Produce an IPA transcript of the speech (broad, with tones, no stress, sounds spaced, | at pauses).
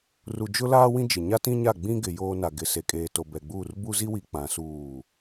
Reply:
r u˨ d͡ʒ ʊ˦ l aː˦ w ĩ˦ d͡ʒ ɪ˨ ɲ a˦ t ĩ˦ ɲ a˦˨ ɡ͡b ĩ˦ ɡ ɪ˨ j oː˦ n a˨ ɡ ɪ˨ s e˨ kʼ eː˨ t o˨ b ɛ˨ ɡ͡b uː˦˨ r b u˦ z i˦ w i˨ k͡p ã˨˦ s uː˦˨